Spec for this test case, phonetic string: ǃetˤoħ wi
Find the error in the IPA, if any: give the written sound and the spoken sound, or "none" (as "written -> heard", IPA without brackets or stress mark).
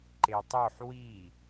none